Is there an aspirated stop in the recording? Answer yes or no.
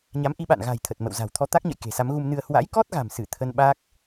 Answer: yes